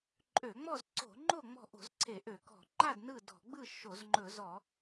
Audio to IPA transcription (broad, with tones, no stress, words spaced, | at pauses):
ǃʼø˧˩˧ŋ͡mɔ˥˨zǀo̤˧˩˧ŋ͡ǃo˥˨ ŋ͡mɔ̤˥˨ ʔo̤˧˩˧zǀʰe˧˩˧ʔø˧˩˧ kɔ̤˧˩˧ ŋ͡ǃa˥˨d nɯ˥˨dɔ̤˧˩˧ ɡ͡bɯ˥˨ ʃo˧˩˧zŋ͡ǃɵ˧˩˧zɔ˧˩˧